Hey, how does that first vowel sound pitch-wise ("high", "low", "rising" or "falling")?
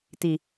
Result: low